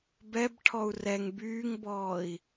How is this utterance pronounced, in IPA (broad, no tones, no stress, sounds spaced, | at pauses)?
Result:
b ɛ b ʈʰ ɔ u̯ r ɛ ŋ b yː ŋ b ɔː i̯